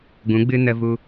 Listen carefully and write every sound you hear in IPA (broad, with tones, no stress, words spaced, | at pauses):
ɡũ˨˦ɡ͡bɨ˦ nə˦vu˦